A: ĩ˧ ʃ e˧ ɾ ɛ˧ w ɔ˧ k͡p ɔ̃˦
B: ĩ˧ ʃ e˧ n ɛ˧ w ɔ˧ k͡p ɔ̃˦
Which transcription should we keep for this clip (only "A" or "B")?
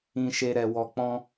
A